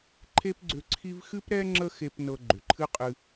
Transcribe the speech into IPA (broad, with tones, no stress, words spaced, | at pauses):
ǃʰe˥pɡ͡ǀʏ˧ ǀʰi˥v xɨ˥pɾɛ˥ ŋ͡ǁə˥xe˧p nɤ˧ɡ͡ǃʏ˩ǃʰɨ˥qʼɨ˧